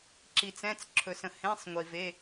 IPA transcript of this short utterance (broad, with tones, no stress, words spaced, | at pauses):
ǁi˩t͡sɛ̃˩˧˩t͡s ǁʰɵ˩sə̃˩ hẽ˩˧˩sˤ ŋʷi˩ve˩˧˩